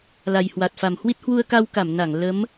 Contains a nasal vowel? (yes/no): no